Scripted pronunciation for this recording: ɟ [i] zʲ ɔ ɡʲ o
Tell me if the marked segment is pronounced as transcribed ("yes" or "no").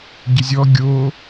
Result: no